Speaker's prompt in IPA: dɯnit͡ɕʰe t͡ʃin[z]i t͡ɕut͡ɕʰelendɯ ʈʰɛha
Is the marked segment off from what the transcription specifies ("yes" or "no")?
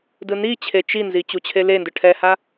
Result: no